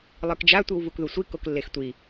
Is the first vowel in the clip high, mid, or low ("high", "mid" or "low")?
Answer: high